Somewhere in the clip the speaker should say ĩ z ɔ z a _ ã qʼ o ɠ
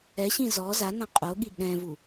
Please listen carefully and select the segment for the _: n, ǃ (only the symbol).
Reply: n